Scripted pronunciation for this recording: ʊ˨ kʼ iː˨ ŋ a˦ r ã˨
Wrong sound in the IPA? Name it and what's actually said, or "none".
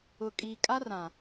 ŋ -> kʼ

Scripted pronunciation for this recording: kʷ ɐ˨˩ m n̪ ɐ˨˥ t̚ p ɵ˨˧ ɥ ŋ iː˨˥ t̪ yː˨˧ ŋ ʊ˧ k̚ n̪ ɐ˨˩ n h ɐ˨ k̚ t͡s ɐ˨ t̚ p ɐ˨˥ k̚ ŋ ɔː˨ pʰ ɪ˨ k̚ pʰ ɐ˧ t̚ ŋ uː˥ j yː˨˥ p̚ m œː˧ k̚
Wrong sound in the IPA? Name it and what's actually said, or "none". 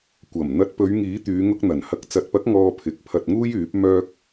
none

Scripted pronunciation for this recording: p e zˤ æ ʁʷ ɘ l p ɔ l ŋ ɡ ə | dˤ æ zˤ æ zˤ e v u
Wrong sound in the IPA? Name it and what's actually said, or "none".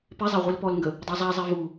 ɘ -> e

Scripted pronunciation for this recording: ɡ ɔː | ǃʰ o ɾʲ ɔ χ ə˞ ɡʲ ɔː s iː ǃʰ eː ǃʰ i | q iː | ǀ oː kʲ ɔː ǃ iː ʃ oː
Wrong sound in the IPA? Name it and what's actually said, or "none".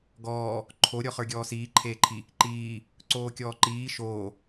q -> ǃ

